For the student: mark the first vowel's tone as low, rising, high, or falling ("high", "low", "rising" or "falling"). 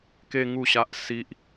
high